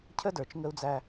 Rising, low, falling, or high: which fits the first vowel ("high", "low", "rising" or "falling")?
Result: high